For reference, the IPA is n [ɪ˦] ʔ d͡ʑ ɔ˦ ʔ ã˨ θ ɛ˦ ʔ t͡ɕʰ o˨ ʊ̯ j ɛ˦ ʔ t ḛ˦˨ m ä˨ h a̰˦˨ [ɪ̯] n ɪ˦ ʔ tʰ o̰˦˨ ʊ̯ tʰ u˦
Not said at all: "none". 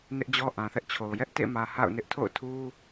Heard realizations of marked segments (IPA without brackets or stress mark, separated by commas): ɪ˦, ʊ̯